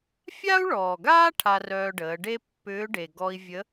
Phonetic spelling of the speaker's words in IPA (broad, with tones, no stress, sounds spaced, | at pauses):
fʲ a˥ u̯ ɭ ɔː˩ ɡ aː˥ ʈʰ a˧ r œː˧ ɖ əː˩˧ ɖ e˥ pː ʏː˧˥ ɖ e˩ ɡ ɔ˧ i̯ vʲ ə˧˥